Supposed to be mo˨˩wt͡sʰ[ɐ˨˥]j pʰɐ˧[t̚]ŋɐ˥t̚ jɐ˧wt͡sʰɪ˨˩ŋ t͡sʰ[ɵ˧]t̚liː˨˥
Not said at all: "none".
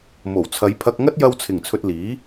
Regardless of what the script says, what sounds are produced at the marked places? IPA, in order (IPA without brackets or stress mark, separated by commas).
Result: ɐ˨˧, k̚, ɵ˧